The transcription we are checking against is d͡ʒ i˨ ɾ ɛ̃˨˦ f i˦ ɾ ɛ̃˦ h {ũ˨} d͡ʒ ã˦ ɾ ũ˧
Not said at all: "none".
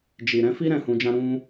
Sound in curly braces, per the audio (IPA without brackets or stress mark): ũ˧